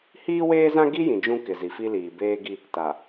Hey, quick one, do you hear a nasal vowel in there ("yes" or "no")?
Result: yes